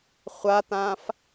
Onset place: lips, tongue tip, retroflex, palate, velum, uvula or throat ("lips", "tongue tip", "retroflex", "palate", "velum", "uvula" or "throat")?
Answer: uvula